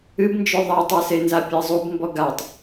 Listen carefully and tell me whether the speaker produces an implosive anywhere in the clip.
no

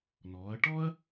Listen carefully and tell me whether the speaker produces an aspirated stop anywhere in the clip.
no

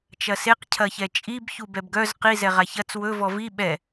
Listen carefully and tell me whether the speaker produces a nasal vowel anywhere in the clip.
no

